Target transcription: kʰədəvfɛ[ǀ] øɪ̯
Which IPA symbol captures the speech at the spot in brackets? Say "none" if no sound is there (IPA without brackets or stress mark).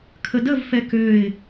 k